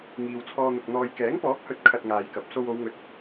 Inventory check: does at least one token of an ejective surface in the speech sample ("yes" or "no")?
no